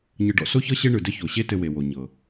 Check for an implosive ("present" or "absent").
absent